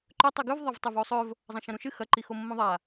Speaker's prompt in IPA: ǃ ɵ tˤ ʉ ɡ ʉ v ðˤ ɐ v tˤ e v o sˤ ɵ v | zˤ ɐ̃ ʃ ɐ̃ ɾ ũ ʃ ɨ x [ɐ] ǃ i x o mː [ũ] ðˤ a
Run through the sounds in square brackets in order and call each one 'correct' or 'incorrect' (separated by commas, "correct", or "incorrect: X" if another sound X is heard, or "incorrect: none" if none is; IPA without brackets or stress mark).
correct, incorrect: õ